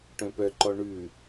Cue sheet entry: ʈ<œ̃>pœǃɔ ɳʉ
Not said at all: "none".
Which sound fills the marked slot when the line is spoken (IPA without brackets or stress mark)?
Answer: œ̃